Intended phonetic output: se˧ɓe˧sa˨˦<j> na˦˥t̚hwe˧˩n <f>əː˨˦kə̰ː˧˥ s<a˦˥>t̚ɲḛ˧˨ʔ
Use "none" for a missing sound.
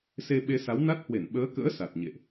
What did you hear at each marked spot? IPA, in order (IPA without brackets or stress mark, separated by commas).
w, ɓ, a˨˩